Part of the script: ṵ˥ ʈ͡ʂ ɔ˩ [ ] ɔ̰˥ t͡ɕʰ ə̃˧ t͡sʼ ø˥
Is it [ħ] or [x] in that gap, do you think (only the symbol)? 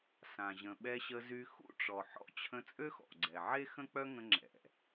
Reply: ħ